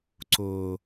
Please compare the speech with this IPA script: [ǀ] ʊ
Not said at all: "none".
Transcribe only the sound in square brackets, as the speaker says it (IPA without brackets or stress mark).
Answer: ǀ